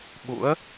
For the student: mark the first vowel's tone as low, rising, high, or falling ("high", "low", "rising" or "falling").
rising